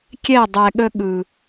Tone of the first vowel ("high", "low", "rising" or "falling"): falling